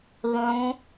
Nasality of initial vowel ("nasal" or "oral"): nasal